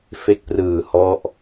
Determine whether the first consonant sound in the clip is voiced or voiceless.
voiceless